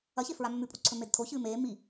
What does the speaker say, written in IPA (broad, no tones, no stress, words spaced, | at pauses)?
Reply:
ɐçe fɹamːʉpʼuǀʰɵ medtʰoçɨː meː mi